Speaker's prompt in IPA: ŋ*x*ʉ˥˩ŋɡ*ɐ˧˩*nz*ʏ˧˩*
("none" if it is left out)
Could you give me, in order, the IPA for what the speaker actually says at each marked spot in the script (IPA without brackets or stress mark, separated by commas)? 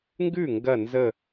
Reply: ɡ, ɐ˧˩, ə˧˩